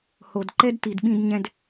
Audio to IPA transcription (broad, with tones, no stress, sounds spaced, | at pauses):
h o˨ d ǃ ɛ˦ d t i˨ d ɓ ĩ˧ d ɲ ɛ̃˦ d